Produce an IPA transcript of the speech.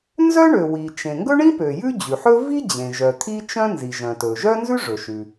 n z œ˥ ɳ ø˩ w i˩ t͡ʃ ẽ˩ ŋ ɡ ɵ˥ ɳ ĩ˥ p ø˩ j ʉ˥ d͡ʑ ʉ˩ ħ ɵ˥ v i˥ d͡ʑ ẽ˩ ʒ œ˩ t̪ʰ i˥ t͡ʃ œ̃˥ n z i˩ ʒ œ̃˩ t ɵ˩ ʒ œ˥ n z ʉ˥ ʐ ɵ˩ ʃ ʉ˩

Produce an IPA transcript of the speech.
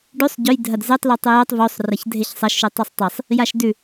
ɖ ʉ sˤ ɟ ɵ j dʱ ɐ d z e tˤ l ɵ tˤ ɵ j o tˤ v o sˤ r ɐ ç dʱ e ç sˤ ɐ ʃ ʉ tˤ ʉ sˤ tˤ e sˤ | j a ʃ d ʉ

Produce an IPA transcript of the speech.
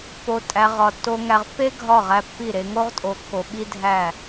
p o˨ tʼ æ˨ ʁ ɒ˨ tː o˨ ŋ æ˨ ʁ pː e˦ ɡʱ ɒ˦˨ ʁ æ˦ pː i˦˨ ɾ e˦ ŋ o˦ ʁ tʼ o˨ kː o˨ ɓ i˦ dʱ æ˦˨

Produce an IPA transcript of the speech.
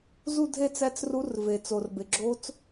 z u˥˧ dʱ e˥˧ t͡s æ˧˥ t͡s r u˧˥ r v e˩ t͡s o˩ r b e˩ ɡ͡ǁ o˧˥ t͡s

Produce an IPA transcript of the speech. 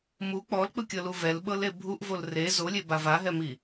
m u k͡p ɔ l k͡p ɯ kʲ ɤ l u v ɛ l ɓ ɤ l e bʱ u ʔ v o l r e z o lʲ e b a v a ɦ ɛ m i

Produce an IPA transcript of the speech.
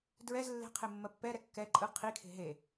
d ɹ ɛ z lː e̤ qʰ e mː ɜ pː ɛ ɾ ɛ kː ɛ ǃʼ ɯ qʰ i kʰ e̤ ɦ e

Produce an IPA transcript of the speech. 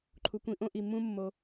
ǃʰ u˨ kʷ ĩ˧ ʔ õ˦ ʔ i˨ mː ũ˦ mː o˧

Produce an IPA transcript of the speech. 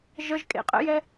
ʒ ə ʒ kʼ ḛ qʼ ə̰ j ɛ

